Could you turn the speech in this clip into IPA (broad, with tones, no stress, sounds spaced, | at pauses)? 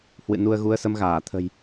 h w ɨ̰˧˨ n u˧ ə̯ ɣ u˨˦ ə̯ s ə˨˦ m ɣ aː˧˩ t̪ʰ ə̤˨˩ j